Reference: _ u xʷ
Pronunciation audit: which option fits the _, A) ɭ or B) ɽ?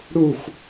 B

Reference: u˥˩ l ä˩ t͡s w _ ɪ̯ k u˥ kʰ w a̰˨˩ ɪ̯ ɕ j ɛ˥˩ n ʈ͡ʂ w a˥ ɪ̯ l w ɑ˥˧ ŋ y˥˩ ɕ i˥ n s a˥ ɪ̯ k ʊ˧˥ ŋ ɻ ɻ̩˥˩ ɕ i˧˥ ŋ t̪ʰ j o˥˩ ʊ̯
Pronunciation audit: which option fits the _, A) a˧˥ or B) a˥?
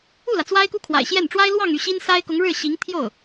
B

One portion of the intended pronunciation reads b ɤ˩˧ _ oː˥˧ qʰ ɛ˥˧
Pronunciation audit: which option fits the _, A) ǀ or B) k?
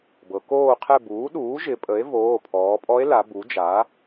B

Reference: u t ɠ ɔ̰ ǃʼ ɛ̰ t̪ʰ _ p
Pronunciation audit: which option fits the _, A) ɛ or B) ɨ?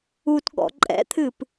B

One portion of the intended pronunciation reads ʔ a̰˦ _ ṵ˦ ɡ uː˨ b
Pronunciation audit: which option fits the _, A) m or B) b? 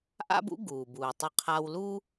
B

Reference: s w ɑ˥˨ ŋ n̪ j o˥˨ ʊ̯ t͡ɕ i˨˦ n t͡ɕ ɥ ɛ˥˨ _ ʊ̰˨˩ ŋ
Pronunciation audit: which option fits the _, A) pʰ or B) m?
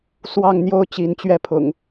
A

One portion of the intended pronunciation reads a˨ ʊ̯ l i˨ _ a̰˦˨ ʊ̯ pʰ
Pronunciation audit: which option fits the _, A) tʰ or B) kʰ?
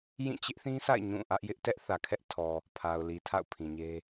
A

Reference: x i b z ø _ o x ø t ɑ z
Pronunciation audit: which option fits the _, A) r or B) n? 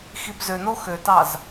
B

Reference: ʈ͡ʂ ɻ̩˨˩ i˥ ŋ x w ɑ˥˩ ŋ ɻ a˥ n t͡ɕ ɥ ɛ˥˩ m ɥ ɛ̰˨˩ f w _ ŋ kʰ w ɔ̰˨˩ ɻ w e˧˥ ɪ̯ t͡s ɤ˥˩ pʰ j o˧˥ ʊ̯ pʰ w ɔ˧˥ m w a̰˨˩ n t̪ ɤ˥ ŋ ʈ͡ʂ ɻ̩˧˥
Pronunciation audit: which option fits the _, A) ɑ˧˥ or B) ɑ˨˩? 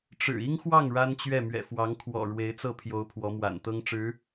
A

